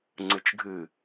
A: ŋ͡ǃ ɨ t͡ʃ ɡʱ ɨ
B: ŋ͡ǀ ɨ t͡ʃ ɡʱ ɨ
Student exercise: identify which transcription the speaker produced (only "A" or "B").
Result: B